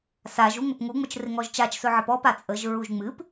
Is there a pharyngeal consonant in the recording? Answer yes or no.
yes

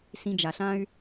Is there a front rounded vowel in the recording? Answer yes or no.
yes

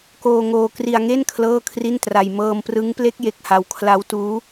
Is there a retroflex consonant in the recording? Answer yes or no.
no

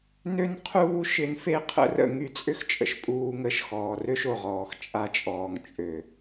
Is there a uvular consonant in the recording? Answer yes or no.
yes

